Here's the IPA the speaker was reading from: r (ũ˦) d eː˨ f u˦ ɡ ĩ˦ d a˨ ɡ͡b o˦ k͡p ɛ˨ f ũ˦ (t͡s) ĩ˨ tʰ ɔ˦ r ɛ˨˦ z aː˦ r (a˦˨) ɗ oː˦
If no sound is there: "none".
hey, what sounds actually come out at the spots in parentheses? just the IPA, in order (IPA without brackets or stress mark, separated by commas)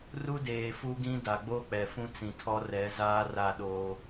u˦, t͡s, a˦˨